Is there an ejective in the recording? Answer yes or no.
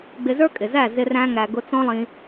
yes